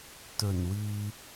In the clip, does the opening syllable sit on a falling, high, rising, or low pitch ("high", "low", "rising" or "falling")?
low